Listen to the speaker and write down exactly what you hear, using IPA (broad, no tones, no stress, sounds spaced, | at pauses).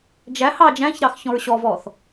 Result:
d͡ʒ æ h ɑ d͡ʒ æ̃ ç ɾ ɑ x ç ɔ̃ ɹ ɕ ɔ v ɔ θ